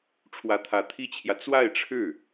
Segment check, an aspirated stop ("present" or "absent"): present